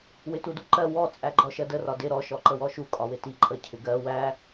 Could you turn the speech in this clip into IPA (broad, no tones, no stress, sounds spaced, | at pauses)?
w ɪ t u d u ǃ ɜ w ɔ t͡sʼ æ ɡ͡ǃ ɔ ʃ ɜ d ə r ɒ d ɪ ɾ ɔ ʃ ɔ ǃ ə w ɔ ʃ u kʼ ɒ w ɪ t i ǃʼ ə cʰ ɪ ɡ ɜ w æ